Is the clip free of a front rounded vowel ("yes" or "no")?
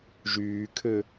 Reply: no